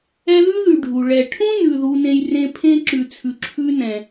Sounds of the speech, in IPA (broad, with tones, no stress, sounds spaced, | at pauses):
ɛ˦ ð ʉ˥ ð ʉ˨ ɖʱ u˩ ɭ ɛ˨ ʈʰ ũ˥ n ʉ˨ ð u˦ n ẽ˦ j r ẽ˥ pʰ ẽ˥ ǁ ʉ˨ t͡sʰ ʉ˨ ǁʰ ʉ˦ n ɛ̃˩